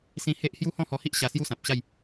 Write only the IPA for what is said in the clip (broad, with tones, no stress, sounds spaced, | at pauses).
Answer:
s ĩ˦ h e˦ ʔ h j u˦ h ɔ̃˥˧ h ɔ˧ h i˦ ʔ ɕ a˧ s j u˦ s ã˨ p̚ ɕ a˥˧ j